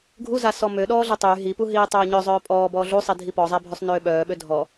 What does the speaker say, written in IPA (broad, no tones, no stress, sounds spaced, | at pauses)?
ɡʱ u z a s ɔ m ø ɗ ɔː ɮ ɛ tˤ yː ɦ i p u ɦ iː tˤ œː ɲ œ zˤ œː pʼ ɔː b ɔː ɮ u sˤ i dʱ i p ɔ zˤ ɛ bʱ ø sˤ n øː ɓ œː ɓ ø dʱ ɔ